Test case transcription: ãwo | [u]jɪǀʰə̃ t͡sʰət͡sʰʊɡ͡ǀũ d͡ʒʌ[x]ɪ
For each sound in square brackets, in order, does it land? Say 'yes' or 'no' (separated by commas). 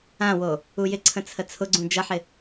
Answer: yes, no